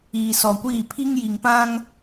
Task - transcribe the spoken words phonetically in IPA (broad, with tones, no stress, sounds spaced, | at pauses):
iː˨ s ɔ˨ kʷ iː˦˨ pʰ i˦ ŋ j i˨ ŋ p ã˦ ŋ